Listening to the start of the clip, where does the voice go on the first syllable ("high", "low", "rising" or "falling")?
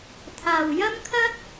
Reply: low